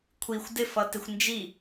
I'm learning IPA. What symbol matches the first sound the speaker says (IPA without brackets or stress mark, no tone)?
kʷʰ